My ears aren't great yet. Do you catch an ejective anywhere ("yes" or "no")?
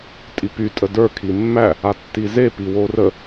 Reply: yes